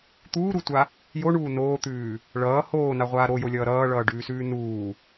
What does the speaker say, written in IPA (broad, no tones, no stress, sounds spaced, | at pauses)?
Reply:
t̪ uː ɾ u tʷ a | j o ɳ uː n oː t̪ ʉː | ɭ ʌː h oː n a ʁʷ aː ɾ o j o lʲ ʌː ɾ ʌː ɭ ʌː ɖ ʉː s ʉː n uː